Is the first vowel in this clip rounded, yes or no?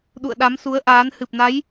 yes